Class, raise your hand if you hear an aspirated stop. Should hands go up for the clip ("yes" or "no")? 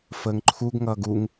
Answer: yes